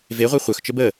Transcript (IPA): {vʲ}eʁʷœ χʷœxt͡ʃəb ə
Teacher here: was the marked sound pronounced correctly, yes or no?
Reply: no